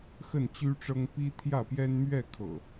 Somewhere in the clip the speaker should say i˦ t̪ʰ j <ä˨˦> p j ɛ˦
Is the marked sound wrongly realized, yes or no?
yes